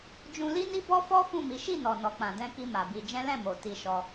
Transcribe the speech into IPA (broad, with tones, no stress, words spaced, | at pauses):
d͡ʒũ˧li˦ni˦ bɔ˦fɔ˦ fũ˦˨mi˨˦ ʃi˦˨nɔ˨ nɔ˨k͡pã˨ dɛ̃˧ki˧ ma˨bi˧d͡ʒɛ̃˦ lɛ̃˦˨mo˨ ti˧ʃɔ˧